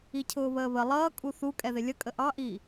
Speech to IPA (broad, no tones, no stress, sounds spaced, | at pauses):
i cʰ ʊː β əː β ə lˠ ʌː kʼ u θ u kʼ ɛ ð ɪ lʲ ə kʼ ə ʔ ɑ ʔ iː